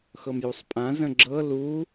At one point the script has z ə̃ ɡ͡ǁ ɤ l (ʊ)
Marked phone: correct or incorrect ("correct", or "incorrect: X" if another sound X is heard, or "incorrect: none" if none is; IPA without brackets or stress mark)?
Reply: incorrect: u